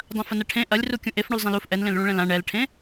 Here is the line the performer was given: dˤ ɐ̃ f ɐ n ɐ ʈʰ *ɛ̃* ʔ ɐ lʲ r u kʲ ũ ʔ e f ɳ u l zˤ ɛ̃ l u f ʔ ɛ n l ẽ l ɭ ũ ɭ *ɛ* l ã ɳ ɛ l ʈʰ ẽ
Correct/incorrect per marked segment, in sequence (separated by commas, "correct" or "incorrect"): incorrect, incorrect